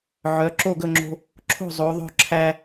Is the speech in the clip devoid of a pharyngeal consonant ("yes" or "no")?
no